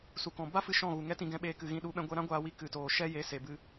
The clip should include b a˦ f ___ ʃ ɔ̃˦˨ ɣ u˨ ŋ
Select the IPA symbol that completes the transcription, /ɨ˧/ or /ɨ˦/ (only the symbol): ɨ˧